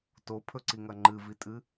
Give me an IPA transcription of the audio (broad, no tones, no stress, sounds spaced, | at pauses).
t o pʰ ɵ ǀ i ŋ ɐ ŋ͡ǃ ɨ v i tʼ ɨ